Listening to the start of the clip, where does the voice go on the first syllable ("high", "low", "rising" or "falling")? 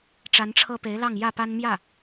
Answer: rising